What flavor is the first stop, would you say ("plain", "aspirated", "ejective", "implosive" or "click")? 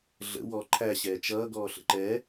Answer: click